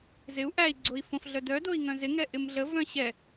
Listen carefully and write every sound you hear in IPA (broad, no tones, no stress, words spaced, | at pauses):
zɪu̯ ʔæi̯ɡ͡ǀoi̯ fõfɮœ dœdoi̯ ŋœ̃zɪŋɛ ʔɪmɮəvœ̃ ɕɛ